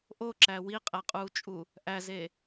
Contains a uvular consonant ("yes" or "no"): yes